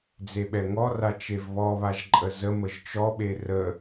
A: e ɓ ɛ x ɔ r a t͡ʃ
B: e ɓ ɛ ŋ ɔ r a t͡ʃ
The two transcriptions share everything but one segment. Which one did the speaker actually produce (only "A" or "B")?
B